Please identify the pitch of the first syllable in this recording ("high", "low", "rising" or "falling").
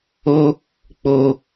high